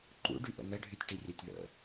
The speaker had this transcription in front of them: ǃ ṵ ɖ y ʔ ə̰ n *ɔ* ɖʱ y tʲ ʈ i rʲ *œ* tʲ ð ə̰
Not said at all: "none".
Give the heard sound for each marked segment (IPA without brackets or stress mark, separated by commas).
ə, œ